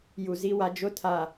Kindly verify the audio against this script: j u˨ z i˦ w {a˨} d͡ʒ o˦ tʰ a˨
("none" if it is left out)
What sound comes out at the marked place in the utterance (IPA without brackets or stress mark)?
a˦